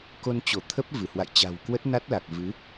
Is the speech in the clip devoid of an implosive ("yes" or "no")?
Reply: yes